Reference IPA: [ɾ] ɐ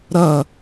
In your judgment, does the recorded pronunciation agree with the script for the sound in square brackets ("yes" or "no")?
yes